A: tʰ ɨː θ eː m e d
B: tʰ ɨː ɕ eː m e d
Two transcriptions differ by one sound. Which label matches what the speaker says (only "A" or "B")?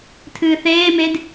A